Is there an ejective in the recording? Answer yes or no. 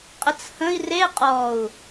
yes